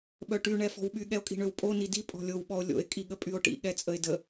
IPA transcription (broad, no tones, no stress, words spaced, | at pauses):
ɓœʈy ɳɛfɔ̤wɓy ɠɛo̯kʼi̤ɳøwpʼo nidi pʼɔ̤lʲow ɓɔo̯lʲo̰e̯ kʼiɠəpʼyo̯ʈḭ ɠɛt͡sʼəe̯də